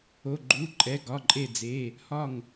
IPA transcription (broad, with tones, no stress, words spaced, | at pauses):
o˩˧˩ɡ͡ǃu˩˧˩ ǃʼɛ˩˧˩ɡɒ˩˧˩ǃʼe˧˩d͡ze˩˧˩ | hɒ˧˩ŋ